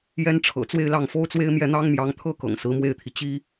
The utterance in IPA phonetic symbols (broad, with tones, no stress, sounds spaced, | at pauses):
j ɛ˥ n ʈ͡ʂʰ ɤ̰˨˩ t͡s w e˥˧ ɪ̯ l ɑ˥˩ ŋ f o˥ ʊ̯ t͡s w e˥ ɪ̯ m j ɛ˥˩ n̪ ɑ˥ ŋ m j ɑ˧˥ ŋ t̪ʰ ɤ˥ k ɤ̰˨˩ ŋ s ɹ̩˧˥ m w e˥˩ ɪ̯ t̪ʰ i˩ t͡ɕ i˥